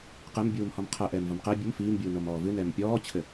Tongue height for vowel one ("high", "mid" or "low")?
mid